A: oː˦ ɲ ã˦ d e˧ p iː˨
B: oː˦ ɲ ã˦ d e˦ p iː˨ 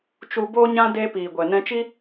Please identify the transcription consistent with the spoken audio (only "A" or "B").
A